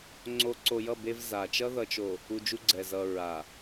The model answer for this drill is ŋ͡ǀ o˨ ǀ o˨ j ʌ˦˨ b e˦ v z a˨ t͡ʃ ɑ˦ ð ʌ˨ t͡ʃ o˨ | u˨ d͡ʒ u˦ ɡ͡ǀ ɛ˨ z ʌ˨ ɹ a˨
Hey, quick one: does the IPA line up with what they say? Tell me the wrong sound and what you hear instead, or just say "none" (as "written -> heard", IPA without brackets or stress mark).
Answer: ɑ˦ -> ʌ˦